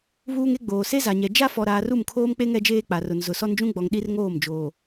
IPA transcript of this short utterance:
β uː˦ ŋ e˦ ɡ͡b oː˨ s e˦ z a˨ ɲ ɛ˨ d͡ʒ a˦ f ɔ˨ ɾ aː˨ r u˦˨ m kʰ oː˦ m k͡p e˦ ŋ ɛ˦ d͡ʒ eː˦ k͡p a˨ r ʊ˨ n z ʊ˨ s ɔ˦ n d͡ʒ ũ˦ ɡ͡b ɔ˨ ŋ ɗ i˦ r ŋ oː˦˨ m d͡ʒ oː˨

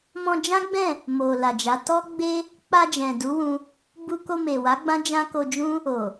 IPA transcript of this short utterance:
m ɔ̃˧ d͡ʒ ã˦ ɡ͡b ɛ̃˦˨ | m o˨ l a˨ d͡ʒ a˨˦ t ɔ˦ ɡ͡b e˦ | k͡p a˧ d͡ʒ ɛ̃˨ d u˨˦ w ũ˧ | b u˧ k o˧ m e˨ w a˨˦ ɡ͡b ã˦ d͡ʒ ã˦ k o˧ d͡ʒ ũ˦ | o˨

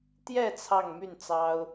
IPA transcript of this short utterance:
t̪ j ɛ˥˧ t͡sʰ ɑ˥˧ ŋ m y˥˩ n t͡s ɑ˥ ʊ̯

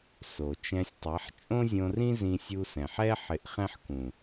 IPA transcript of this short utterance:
s o˨ t͡ʃ ɛ̃˧ sʲ tˤ ɛ˨˦ ħ t͡ʃʼ õ˦ zʲ õ˧ r ĩ˦ z ĩ˧ sʲ u˧ s ɛ̃˨ ħ ɛ˦ ħ ɪ˧ ʔ χ ɛ̃˦ ħ k ũ˨

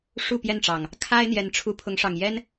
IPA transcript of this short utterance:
ʂ u˥˨ p j ɛ˥˨ n ʈ͡ʂ ɑ˨˩ ŋ | kʰ a˦ ɪ̯ n̪ j ɛ˨˦ n ʈ͡ʂʰ u˨˦ pʰ ʊ˨˦ ŋ ʂ ɑ˨˩ ŋ j ɛ˦ n

